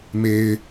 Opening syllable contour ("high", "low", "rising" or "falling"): low